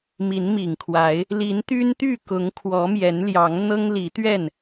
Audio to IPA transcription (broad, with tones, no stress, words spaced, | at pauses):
mi˨˦nmi˨˩ŋkʰwa˨˦ɪ̯ | li˨˦nt̪y˦nt̪y˥˨kʊ˨˦ŋ kʰwɔ˨˦mjɛ˨˦nljɑ˨˦ŋ n̪ɤ˦ŋli˨˦t̪ɥɛ˥˨n